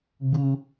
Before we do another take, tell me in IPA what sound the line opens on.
ɡ͡b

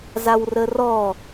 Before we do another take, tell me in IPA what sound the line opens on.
z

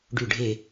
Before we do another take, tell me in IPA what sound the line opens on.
ɖ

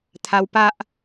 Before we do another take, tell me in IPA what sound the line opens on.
t̪ʰ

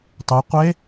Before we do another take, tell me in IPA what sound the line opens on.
tˤ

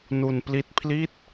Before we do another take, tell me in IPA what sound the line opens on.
n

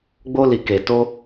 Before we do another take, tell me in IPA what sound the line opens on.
ɡ͡b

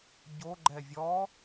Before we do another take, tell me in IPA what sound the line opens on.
ɟ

